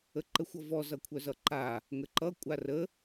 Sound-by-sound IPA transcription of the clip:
ə ǃ ə xʷ ʌ v ɔ z ʌ kʷʰ œ z ʌ ǃ a | ŋ ə ǃ ʌ kʷʼ a r ə

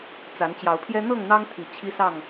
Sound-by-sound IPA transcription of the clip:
t͡s a˨˦ n t͡ɕ j ɑ˨˦ ʊ̯ pʰ j ɛ˦ n̪ ɤ˥˨ ŋ n̪ ɑ˦ ŋ t̪ʰ i˨˩ t͡ɕʰ i˦ s ɑ˥˨ ŋ

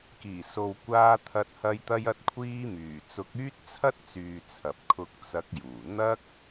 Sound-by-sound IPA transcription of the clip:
k iː˨˩ s o˨ w kʷ aː˧ t̪ʰ ɐ˧ t̚ h ɐ˧ j t̪ ɐ˧ j ɐ˧ t̚ kʷʰ iː˧ m yː˨˩ t͡s ʊ˨˥ k̚ yː˥ t̚ t͡sʰ ɐ˥ t̚ t͡s yː˨ t͡sʰ ɐ˨ p̚ kʰ ʊ˧ k̚ t͡s ɐ˨˥ k̚ j uː˨˩ n̪ ɐ˥ k̚

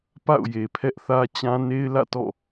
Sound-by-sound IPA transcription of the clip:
p a̰˦˨ ʊ̯ j e˨ pʰ ɛ˦ ʔ θ ä˦ t͡ɕ ã˦ n e˦ ɪ̯ l ä̰˦˨ t ɔ̰˦˨

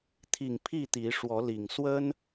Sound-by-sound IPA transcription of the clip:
t̪ʰ i˨˩ ŋ pʰ i˥˨ t̪ i˨˦ ʂ w ɔ˨˦ l i˨˩ ŋ s w ə˦ n

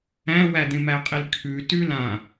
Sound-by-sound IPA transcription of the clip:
æ̃ w æ d̪ ẽ m æ qʼ i l kʰ ʉ t ʉ l ã

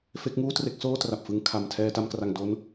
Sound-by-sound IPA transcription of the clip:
f e˦˥ k̚ ŋ uː˥˩ t r e˦˥ k̚ s oː˥˩ t r a˨˩ p̚ f ɯ˧ ŋ kʰ a˨˩ m tʰ ɛː˧ t a˧ m k r a˨˩ ŋ d o˦˥ n

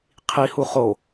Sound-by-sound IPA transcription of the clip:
qʰ i h u χ o

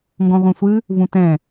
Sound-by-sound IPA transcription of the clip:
ŋ ɡ ɔ̃ ʁʷ ɛ̃ sʷ ɨ | v ũ t ɛ̃

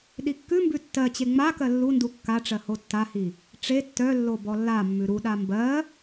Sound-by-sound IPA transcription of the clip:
ɗ i kː ʉ m b ʉ tː ɜ t͡ɕ e ŋ͡m a k ɜ lː u n d u kː a ʈ͡ʂ ɜ h o tː a h i | ʈ͡ʂ e tː œ lː o b ɔ lː a mː ʉ ɾ u ɗ a m b ɜ

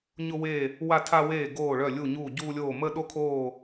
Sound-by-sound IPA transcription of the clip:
ɲ ʊ˥ w e˥˧ | w a˥ tʰ a˥ w eː˥˧ ɡ oː˥˧ ɭ œ˥˧ lʲ u˥˧ ɲ uː˥˧ ɟ uː˥ lʲ oː˥˧ m ə˥ ɗ o˥ kʰ oː˥˧

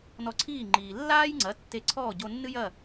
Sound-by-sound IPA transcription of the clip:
n ɔ˧ ǀʰ iː˥˩ ŋ͡ǃ iː˩ lː aː˥ j ŋ͡ǀ ɐ˩˥ tː e˧ ǀʰ ɔː˥˩ ɟ o˧ nː ɨ˥ j ɐ˥˩

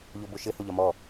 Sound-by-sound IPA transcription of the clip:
ʎ o b o ʃ ɘ h o ʎ ɒ m ɔ

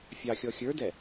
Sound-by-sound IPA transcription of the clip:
fʲ ɑ xʲ ɔ xʲ ə˞ d ɛ

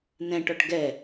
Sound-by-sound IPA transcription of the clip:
n ɛ̃ ʈ ɔ ʈ ɡ ɛ

